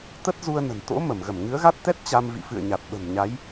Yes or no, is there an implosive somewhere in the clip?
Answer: yes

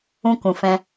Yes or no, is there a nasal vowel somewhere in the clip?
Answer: yes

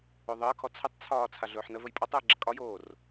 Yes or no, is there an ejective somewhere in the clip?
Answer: yes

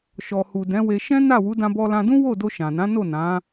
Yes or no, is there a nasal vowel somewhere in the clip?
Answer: yes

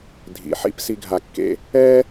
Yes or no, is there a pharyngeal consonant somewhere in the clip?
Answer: yes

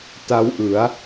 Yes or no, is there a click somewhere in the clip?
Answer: no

